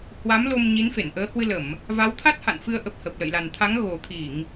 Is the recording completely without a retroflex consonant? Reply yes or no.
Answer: yes